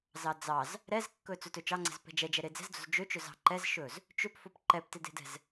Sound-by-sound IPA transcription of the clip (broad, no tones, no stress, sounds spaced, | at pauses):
z ɑ d͡z ɑ z | ɾ ɛ z kː ɵ t͡s ɵ t ɵ t͡ʃ ɑ ŋ͡ǀ ɛ̤ z p ɛ̤ d͡ʒ ɛ d͡ʒ ɛ ɾ e d͡z ɛ̤ z d͡z o̤ z d͡ʒ ø t͡ʃ ɵ z ɑ̤ ǃ ɛ z ʃ ɵ z | t͡ʃ ø p f o p ǃ ɛ p t e d e̤ d ɛ̤ z